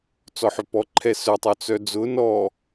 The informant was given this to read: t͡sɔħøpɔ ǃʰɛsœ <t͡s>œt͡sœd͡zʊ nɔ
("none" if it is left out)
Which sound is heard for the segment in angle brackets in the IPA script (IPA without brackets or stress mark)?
tˤ